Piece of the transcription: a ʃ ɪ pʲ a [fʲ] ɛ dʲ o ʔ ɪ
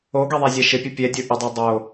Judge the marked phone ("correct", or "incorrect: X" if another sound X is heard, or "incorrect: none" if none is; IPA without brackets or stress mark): incorrect: pʲ